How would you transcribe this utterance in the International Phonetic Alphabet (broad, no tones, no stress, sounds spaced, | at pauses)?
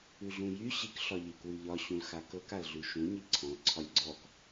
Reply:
ʉ ɮ ũ j y ɕ i k ɬ ɒ ʎ i k w ʉ ʎ ɒ ɕ ũ l x a k ɤ k a l ɮ ʉ ʃ ũ ɲ i ǀʰ ɔ̃ l ǀʰ ɒ lʲ ɡ͡ǀ ɔ k